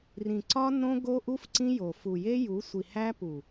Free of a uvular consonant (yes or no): yes